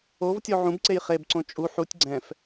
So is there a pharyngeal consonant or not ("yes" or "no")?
yes